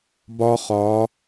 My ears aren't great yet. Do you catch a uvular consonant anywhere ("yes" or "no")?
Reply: yes